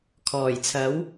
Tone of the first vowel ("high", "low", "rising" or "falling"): low